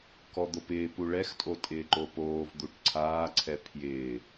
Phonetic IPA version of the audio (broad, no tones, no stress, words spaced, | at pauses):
kɔd̪opɪː puɭɛxtʼo tʼɪːǃopoːvd̪uʈ ǀʰaːǀʰɛ pʰjɪː